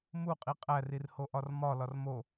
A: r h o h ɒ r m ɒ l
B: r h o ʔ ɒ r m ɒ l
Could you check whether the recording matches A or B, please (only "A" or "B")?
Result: B